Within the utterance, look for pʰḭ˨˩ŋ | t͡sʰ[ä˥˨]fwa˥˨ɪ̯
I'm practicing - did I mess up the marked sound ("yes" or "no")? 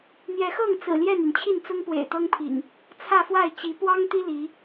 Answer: no